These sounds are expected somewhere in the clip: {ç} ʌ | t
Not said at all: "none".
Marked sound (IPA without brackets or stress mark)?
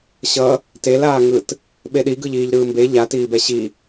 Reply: ɕ